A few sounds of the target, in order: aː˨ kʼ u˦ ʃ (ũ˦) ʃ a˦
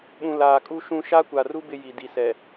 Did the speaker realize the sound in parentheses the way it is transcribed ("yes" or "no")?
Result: yes